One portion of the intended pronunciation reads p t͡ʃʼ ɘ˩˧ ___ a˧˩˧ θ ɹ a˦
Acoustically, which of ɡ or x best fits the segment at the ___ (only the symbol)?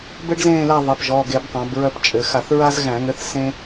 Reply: x